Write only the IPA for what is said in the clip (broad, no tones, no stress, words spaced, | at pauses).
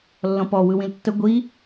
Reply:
lːɔ̃pɔ wɯwĩltːə ɡʷi